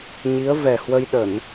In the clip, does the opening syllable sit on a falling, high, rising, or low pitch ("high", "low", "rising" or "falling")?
rising